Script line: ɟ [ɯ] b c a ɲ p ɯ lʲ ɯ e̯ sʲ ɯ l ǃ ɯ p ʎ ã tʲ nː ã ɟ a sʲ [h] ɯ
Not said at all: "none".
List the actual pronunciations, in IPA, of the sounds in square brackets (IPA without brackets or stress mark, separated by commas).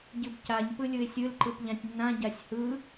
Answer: ɯ, h